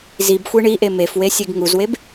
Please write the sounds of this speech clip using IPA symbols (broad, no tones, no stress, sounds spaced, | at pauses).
z i b xʷ e ɳ i ʔ e m e f w e sʲ e ɡ ŋ u z w e b